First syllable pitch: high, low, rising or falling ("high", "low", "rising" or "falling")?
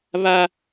high